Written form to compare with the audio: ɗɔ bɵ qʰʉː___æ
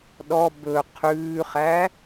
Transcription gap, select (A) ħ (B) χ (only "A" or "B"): B